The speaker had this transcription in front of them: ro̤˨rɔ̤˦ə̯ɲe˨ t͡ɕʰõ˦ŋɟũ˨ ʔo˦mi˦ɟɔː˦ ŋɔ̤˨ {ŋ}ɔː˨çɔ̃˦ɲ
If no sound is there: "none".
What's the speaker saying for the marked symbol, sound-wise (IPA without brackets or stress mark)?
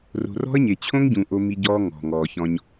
ŋ